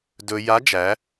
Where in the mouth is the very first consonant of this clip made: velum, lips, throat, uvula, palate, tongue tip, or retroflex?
tongue tip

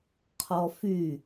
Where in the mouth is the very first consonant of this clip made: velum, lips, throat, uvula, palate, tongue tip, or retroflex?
uvula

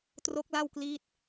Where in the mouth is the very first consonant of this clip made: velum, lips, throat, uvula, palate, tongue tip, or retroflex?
tongue tip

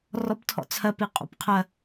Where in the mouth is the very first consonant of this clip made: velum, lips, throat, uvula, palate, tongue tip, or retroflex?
tongue tip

